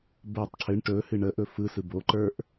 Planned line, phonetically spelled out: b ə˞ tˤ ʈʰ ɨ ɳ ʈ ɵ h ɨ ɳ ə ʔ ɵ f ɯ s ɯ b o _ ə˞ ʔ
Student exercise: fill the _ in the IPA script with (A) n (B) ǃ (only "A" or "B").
B